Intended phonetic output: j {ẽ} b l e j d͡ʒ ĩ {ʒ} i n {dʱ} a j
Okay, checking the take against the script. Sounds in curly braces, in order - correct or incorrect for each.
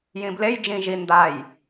incorrect, correct, incorrect

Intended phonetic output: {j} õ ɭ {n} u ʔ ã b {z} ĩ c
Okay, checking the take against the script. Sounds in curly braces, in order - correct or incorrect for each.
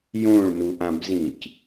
correct, correct, correct

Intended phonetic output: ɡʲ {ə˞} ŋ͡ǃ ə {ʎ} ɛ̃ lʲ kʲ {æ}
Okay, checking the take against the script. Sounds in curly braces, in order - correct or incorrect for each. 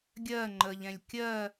incorrect, correct, incorrect

